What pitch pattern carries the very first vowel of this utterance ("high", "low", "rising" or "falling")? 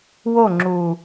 falling